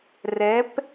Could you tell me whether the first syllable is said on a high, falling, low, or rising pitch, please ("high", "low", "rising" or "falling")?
rising